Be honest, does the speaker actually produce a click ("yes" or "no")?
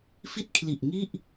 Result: no